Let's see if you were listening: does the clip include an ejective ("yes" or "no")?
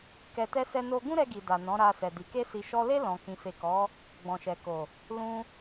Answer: no